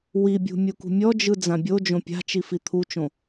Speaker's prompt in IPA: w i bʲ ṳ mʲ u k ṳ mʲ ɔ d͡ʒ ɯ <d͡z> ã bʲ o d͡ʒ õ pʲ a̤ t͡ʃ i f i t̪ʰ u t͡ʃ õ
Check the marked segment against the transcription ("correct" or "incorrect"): correct